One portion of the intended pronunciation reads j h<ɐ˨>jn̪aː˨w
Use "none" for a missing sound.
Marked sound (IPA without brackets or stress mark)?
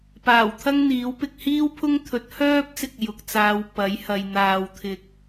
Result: ɐ˨